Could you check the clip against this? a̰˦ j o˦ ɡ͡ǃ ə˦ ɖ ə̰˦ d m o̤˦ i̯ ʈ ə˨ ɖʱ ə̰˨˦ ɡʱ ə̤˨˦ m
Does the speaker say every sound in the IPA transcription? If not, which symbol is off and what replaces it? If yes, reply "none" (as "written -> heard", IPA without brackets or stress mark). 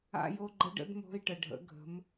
none